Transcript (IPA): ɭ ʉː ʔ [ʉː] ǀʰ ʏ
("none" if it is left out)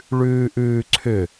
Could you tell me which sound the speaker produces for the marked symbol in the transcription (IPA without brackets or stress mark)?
ʉː